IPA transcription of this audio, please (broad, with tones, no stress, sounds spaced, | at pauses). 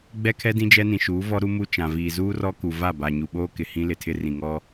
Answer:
ɡ͡b ɛ˦ kʰ ɛ˦ d ĩ˦ d͡ʒ ɛ˦ n ĩ˨ ʃ uː˨˦ v ɔ˦ ɾ u˦ m u˦ t͡ʃ ã˨ v iː˨ z uː˦ r ɔ˦ k u˨ v a˦˨ b a˨ ɲ u˨ ɓ oː˦ k ɪ˨ h ĩ˦ l ɪ˨ tʰ ɪ˦ r ĩ˨ ŋ ɔ˦